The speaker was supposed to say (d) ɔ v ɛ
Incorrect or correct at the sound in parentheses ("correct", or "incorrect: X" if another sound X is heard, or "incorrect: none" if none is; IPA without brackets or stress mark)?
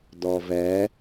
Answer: correct